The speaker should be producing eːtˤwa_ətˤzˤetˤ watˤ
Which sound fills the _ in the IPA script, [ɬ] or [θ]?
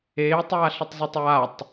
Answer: ɬ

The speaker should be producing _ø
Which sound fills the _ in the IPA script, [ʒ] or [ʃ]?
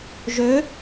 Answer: ʒ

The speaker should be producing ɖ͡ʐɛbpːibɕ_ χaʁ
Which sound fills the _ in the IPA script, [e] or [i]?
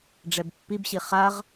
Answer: i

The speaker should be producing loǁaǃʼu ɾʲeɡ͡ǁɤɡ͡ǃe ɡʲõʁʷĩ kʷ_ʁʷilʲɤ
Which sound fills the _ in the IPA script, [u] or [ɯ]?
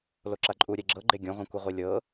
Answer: ɯ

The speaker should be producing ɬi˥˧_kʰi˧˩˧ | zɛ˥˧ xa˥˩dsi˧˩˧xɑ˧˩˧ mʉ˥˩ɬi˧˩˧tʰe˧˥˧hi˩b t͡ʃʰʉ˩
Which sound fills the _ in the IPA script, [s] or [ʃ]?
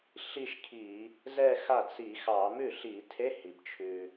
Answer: ʃ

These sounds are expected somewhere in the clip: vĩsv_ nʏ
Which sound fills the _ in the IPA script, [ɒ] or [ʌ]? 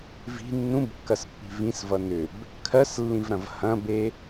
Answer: ʌ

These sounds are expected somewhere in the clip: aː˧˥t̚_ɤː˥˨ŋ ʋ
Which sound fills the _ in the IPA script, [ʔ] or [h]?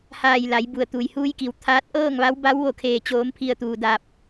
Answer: ʔ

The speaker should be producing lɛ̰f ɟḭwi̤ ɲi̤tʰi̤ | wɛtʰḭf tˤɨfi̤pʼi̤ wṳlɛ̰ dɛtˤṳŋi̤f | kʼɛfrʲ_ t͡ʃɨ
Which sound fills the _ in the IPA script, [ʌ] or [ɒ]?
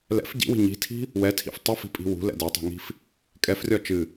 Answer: ɒ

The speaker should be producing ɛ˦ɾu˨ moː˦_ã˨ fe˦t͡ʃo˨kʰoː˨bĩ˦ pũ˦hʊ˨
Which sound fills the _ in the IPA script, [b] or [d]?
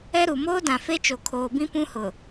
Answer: d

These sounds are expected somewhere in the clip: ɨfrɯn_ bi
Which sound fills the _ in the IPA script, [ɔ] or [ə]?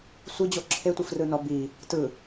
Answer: ɔ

